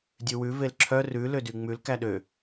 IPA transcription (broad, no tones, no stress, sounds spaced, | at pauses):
dʲ ʉ w ʉ v e l ǁʰ œ r ʉ l ø d y ŋ͡m ʉ l k æ ɗ ø